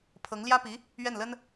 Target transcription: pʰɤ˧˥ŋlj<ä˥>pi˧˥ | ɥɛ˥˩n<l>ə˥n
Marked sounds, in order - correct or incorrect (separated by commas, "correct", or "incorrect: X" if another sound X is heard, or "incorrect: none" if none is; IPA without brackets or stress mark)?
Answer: correct, correct